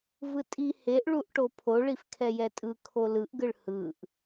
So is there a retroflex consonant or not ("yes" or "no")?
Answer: yes